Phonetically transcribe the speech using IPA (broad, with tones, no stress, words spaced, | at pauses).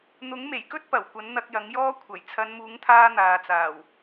n̪ʊ˨˥ŋme˨˩jkɵ˥t̚ pɐ˨˩wkʷɐ˨˥n n̪ɐ˧k̚jɐ˨˥ŋjɔː˥ kʷʰɐ˨˩j t͡sʰɐ˨˧nmuː˨˥ŋt̪ʰaː˧ n̪aː˨t͡saː˨˩w